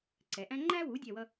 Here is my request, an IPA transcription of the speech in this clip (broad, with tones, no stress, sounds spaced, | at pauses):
ǀ ɛ˩˧ ʔ æ̃˥ ŋ͡ǃ æ˥ w u˩˥ dʲ ɛ˥˧ w ʌ˥